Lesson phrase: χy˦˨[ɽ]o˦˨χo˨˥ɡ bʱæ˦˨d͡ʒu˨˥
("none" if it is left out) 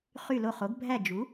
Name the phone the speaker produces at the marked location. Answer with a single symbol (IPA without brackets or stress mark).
l